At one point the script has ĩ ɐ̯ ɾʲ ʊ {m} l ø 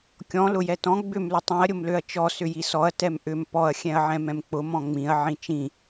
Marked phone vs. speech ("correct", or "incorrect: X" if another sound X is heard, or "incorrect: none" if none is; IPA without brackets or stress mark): correct